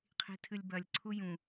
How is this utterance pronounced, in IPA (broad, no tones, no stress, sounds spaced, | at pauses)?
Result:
qʰ i̤ tʰ ɨ lʲ b ɐ lʲ ǀʰ u j ũ